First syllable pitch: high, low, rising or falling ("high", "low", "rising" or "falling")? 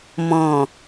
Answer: low